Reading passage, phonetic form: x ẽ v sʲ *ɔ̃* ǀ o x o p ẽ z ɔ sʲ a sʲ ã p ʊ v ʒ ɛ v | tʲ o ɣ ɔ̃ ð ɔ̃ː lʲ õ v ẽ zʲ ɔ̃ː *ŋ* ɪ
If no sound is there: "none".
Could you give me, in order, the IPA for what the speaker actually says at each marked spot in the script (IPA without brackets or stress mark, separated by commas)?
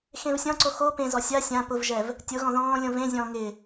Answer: ɔ̃, ŋ